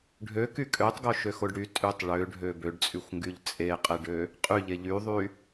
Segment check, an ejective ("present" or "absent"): present